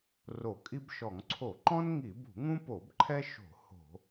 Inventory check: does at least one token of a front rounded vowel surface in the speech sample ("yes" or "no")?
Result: no